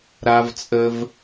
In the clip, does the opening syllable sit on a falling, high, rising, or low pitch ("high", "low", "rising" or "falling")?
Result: high